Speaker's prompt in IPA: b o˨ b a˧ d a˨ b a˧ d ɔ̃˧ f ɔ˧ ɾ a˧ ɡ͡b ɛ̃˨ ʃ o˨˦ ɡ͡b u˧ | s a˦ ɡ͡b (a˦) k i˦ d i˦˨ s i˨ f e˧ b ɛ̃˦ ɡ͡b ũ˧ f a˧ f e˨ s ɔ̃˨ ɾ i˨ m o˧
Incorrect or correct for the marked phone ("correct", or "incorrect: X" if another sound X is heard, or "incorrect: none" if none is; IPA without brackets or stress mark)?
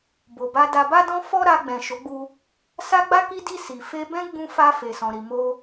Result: correct